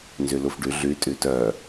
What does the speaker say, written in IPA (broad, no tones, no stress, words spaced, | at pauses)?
nzylufɖy ɮy tʼytœ